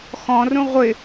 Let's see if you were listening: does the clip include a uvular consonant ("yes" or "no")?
yes